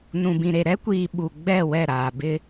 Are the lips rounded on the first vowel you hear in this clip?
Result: yes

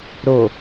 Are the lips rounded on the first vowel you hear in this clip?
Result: yes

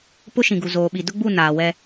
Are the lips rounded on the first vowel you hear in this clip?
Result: yes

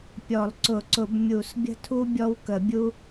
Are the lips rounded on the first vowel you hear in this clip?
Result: yes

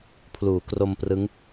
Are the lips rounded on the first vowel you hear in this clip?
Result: yes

